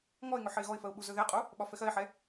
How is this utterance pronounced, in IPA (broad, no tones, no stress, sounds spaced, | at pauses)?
ŋ ɔ ɪ̯ ŋ ɵ ħ ɘ ɪ̯ ɣ ɔ ɪ̯ f ɜ ʊ̯ ɓ u z ɵ ð ɛ qʼ u | ɓ ɒ f ɛ x ɜ ɪ̯ ħ ɛ